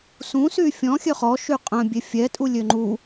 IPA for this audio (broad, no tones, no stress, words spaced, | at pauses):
sũsy fʲɔ̃xʲø χɔ ʃyqʼœ̃ bʲefʲɛtʼu lʲøŋ͡ǃu